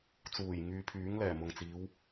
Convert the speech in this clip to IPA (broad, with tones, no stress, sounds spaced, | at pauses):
t͡s uː˨˩ j ŋ yː˧ pʰ yː˨˥ ŋ l ɛː˨˩ m ʊ˨ ŋ t͡s iː˨˧ w